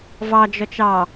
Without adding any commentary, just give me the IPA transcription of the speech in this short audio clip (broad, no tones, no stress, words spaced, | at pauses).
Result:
vɑd͡ʒɔt͡ʃ ɑ